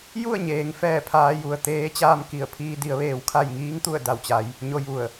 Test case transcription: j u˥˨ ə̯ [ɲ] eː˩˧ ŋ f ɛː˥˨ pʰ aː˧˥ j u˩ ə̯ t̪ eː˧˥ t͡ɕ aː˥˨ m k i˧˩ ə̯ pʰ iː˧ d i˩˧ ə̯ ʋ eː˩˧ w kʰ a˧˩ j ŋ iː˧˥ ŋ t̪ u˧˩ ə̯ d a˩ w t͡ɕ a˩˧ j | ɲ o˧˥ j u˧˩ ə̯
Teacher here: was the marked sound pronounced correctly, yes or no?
yes